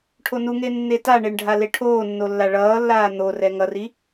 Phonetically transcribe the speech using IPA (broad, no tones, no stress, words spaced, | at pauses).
ʈʰonuŋe nːetaɳeɳ ɖʱaleʈʰoːnːo lːaɭʌːlːaː n̪orɛ ŋʌri